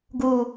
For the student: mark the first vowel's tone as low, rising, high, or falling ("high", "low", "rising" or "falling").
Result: low